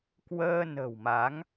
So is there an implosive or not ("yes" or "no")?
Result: no